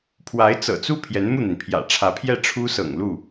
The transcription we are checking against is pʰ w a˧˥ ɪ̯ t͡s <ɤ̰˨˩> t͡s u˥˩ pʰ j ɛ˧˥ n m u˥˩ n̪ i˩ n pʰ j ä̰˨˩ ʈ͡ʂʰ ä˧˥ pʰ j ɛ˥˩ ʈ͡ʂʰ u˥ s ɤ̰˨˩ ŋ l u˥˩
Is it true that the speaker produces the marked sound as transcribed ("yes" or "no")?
yes